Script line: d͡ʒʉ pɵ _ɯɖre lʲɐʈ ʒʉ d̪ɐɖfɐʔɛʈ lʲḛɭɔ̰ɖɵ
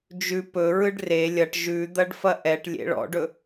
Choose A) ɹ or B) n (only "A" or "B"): A